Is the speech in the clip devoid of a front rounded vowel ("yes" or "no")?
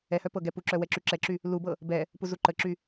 no